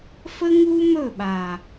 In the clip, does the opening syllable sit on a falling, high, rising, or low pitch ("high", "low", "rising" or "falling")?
high